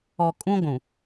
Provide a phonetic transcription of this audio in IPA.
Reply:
ɔ˨kʼũ˦ ɡʷũ˨

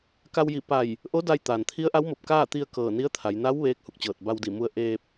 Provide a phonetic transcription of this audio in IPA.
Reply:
ka˧wji˧˩ pa˧˩j | ʔo˧˥ da˧jt̪aː˩n t̪ʰi˧˥ə̯ʔa˧˥wmo˧˩p̚ kaː˥˨t̪i˧ə̯ kɤː˧˩ni˧˥ə̯t̪ʰa˩˧j na˧˥w ʋeː˧˥k̚hu˧˩k̚t͡ɕɤː˧˩t̚ ba˧wdi˧˩mu˧ə̯ ʔeː˧p̚

